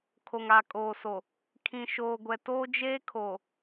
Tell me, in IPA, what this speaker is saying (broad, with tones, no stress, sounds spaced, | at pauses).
kʰ o˨ ŋ aː˨ kʼ oː˨ s o˨ | kʰ ĩ˨ ʃ oː˨ ɡʷ ɛ˨ t oː˦ d͡ʒ eː˦ kʰ o˨